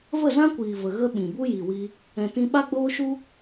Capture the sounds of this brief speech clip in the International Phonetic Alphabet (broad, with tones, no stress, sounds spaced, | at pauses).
v ə˦˨ z ã˦ kʷ iː˨ v ə˨ ɣ ə˦ ɓ ĩ˨ b u˦ j i˨ w i˧ | ɛ̃˨ t ĩ˧ ɓ a˦ ɡ͡b oː˦ ʃ u˦